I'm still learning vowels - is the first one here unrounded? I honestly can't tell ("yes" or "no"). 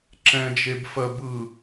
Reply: yes